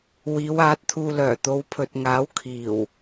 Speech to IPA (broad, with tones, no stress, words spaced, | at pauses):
wiː˨˧w aː˨˥t̚t̪ʰuː˧lœː˨˩ t̪o˨˧wpʰɵ˨t̚ŋaː˨˥w kʰiː˨˩w